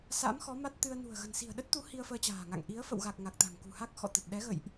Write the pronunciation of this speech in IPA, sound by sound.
s a̰˧˥ m x ɔ˨˦ m a˦˥ t̚ t̪ ɨ˧ ə̯ n ṳ˨˩ ə̯ ɣ ə̤˨˩ n s i̤˨˩ ə̯ ɗ ə˦˥ t̚ t̪ u˨˦ h i˧ ə̯ f əː˧ t͡ɕ a̤ː˨˩ ŋ a̰˧˨ ŋ ʔ i˨˦ ə̯ f ə̰˧˨ w ɣ a˨˩ k̚ ŋ a˨˩ k̚ t̪ a̤˨˩ ŋ k ṳ˨˩ h a˦˥ k̚ x ɔ̰˧˨ t̪ ə˨˩ t̚ ɗ ɛ˨˦ ɣ ə̰˧˨ j ʔ

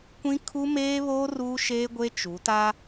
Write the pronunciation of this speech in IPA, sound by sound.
kʷ ĩ˦ kʰ u˦ m eː˦ β oː˦ r uː˦ ʃ eː˦ ɡʷ e˦ t͡ʃ u˨˦ t a˦

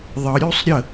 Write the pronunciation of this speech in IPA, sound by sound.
ðˤ ə ɾʲ u sˤ ɾʲ ə

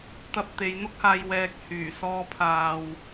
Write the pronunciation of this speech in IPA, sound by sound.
t̪ ɐ˧ p̚ t̪ e˨˧ j n̪ ʊ˥ k̚ h aː˧ j w ɛː˧ k̚ h yː˨˩ s ɔː˧ pʰ aː˨ w

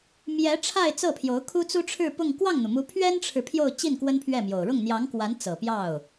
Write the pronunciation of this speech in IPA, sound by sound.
m j ɛ˧˥ ʈ͡ʂʰ a˥˧ ɪ̯ t͡s ɤ˥˩ pʰ j o˧˥ ʊ̯ kʰ u˥ t͡s u˥ ʈ͡ʂʰ ɻ̩˥˧ p ʊ˥˧ ŋ k w ɑ˥˩ ŋ n̪ u˩ m u˧˥ pʰ ɥ ɛ˥ n ʈ͡ʂʰ ɻ̩˨ pʰ j o˥˧ ʊ̯ t͡ɕ i˥˩ n k w ə˥ n pʰ ɥ ɛ˥˩ m j o˨˩ ʊ̯ ɻ ʊ˥˩ ŋ n̪ j ɑ˧˥ ŋ k w a˧˥ n t͡s ɤ˨˩ p j ɑ˥˩ ʊ̯

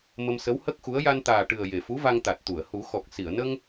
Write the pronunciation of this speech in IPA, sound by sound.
m ə˧ m s ə˧˥ w h ə˦˥ k̚ x u˧˥ ə̯ j a˧ n t̪ aː˨˩ ʈ ɨ˨˩ ə̯ j e˨˩ f u˧˥ v a˧ ŋ t̪ a˨˩ t̚ t̪ u˨˩˨ ə̯ h u˨˩˦ x ɔ˨˩ k̚ s i˨˩˨ ə̯ n ə˧ ŋ

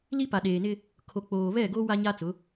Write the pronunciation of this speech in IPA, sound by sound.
l i˦ p a˨ ɗ eː˨ n ɪ˦ | kʰ o˨ k͡p oː˨ β ɛ˦˨ ɡ o˦ w a˦ ɲ a˦ t͡s ʊ˨˦

